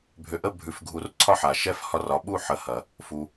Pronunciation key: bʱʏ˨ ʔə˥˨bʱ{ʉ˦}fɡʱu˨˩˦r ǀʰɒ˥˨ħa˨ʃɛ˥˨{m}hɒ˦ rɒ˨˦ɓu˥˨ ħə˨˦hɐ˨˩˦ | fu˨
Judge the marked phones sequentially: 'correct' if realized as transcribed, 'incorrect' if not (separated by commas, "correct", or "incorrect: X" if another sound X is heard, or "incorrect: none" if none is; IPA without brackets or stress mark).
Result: incorrect: ʉ˨˩˦, incorrect: f